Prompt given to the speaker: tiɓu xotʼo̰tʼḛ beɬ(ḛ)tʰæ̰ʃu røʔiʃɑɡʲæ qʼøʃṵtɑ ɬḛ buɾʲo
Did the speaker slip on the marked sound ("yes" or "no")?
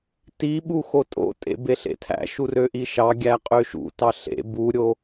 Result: no